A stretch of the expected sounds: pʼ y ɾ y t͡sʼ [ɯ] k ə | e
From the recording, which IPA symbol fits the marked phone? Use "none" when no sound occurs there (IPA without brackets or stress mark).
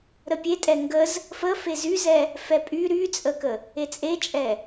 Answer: ə